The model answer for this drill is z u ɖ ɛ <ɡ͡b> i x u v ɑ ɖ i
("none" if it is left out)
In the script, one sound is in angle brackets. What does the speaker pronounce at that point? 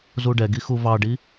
ɡ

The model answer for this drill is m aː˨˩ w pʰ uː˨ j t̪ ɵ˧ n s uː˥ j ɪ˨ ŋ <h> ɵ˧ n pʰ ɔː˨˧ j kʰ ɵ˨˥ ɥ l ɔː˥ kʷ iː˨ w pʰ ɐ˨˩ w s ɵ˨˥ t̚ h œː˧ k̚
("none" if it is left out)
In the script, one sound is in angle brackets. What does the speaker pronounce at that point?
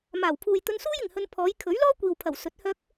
h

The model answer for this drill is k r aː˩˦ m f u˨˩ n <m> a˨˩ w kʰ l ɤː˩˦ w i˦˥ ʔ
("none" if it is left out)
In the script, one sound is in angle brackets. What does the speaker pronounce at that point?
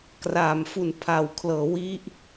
pʰ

